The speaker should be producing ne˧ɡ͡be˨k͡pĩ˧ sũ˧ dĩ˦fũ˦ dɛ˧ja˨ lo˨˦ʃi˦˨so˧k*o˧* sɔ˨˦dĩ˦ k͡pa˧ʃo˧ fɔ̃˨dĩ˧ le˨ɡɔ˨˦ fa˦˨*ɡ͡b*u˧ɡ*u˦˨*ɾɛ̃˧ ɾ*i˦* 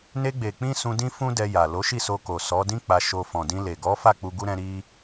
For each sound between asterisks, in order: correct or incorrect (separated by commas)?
incorrect, incorrect, incorrect, correct